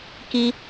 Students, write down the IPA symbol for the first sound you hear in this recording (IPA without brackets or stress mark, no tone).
k